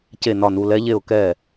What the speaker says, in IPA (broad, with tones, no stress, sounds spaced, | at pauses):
c e˥˨ n ɒ˥˨ n u˧˥˧ l ɛ˦˥ ʎ e˥˨ ʊ̯ k ɛ˥˨